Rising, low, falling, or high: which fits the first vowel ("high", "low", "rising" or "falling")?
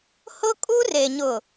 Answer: high